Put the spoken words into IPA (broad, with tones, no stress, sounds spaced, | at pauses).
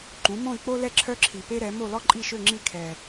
ǃ ũ˩˥ m õ˥˨ i̯ k͡p o˥ l ɛ˥ ǁʰ œ˥ ǁʰ i˨˩ p e˥ ɾ ɛ˩˥ m o˥˨ l ɔ˥ ǃʼ i˥˨ ʃ ø˥˨ ŋ͡ǁ i˥˨ kʰ ɛ˨˩